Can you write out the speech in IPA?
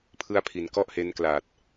pʰɯ˦˥a̯ pʰi˩˦n kɔ˥˩ʔhe˦˥n kla˨˩t̚

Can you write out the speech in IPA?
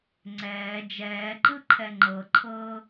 ŋ͡ǀɛː d͡ʒɛːǃɯǃʰɛ ŋ͡ǃɤǃʰɤː

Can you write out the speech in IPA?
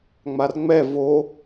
ŋ͡marŋ͡mɛ vo

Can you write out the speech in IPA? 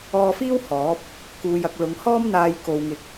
ɔː˧fiː˥w hɔː˨˥p̚ | kuː˧jɐ˧k̚ lʊ˨˧ŋ hɔː˥mn̪aː˧j ko˧wŋɪ˧k̚

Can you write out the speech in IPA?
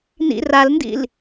nḭ ralndḭl

